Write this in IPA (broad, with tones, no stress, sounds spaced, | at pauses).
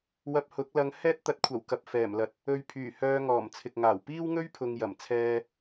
w ɐ˧ p̚ h ʊ˨˥ k̚ l ɐ˨˧ ŋ h ɛː˥ t̚ t̪ ɐ˨˥ t̚ kʷʰ ɐ˨˩ w k ɐ˨ p̚ f ɛː˨˩ m l ɐ˨ t̚ | ɵ˧ ɥ pʰ yː˨˩ h œː˧ ŋ ɔː˨˩ m t͡sʰ ɪ˨ k̚ ŋ aː˨˩ w p iː˥ w ŋ ɵ˥ ɥ pʰ ʊ˧ ŋ j ɐ˨˩ m t͡sʰ ɛː˧